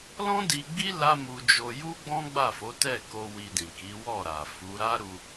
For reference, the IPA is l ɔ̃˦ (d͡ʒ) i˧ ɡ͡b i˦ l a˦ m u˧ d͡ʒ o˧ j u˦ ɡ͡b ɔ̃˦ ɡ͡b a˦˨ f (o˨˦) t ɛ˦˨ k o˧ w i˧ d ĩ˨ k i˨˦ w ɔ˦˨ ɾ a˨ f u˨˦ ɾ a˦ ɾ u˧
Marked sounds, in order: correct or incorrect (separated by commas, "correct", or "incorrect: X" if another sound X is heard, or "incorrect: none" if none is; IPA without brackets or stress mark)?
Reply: incorrect: d, correct